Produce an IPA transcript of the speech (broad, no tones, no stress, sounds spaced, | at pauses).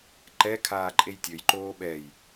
ǃ ɛ kʰ aː ǃʼ e j tʲ ɵ j ǃ oː ɓ ɛ j